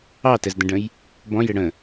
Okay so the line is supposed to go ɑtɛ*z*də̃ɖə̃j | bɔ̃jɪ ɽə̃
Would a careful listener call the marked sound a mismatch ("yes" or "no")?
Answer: no